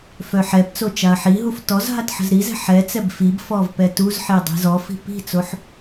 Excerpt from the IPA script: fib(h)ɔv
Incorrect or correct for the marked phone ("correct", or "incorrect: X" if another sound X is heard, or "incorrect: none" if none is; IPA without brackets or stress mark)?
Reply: incorrect: f